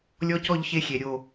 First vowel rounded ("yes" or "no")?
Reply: yes